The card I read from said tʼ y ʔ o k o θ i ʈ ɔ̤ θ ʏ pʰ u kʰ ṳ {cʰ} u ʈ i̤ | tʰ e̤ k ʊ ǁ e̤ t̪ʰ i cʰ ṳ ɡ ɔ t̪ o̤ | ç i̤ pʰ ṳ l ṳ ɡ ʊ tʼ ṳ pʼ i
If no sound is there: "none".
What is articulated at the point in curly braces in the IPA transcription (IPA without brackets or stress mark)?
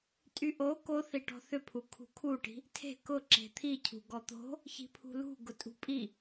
kʰ